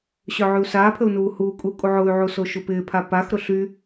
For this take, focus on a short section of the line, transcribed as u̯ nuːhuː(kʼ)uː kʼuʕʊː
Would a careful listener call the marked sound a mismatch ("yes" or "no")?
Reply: no